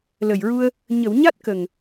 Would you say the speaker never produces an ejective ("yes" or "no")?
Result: yes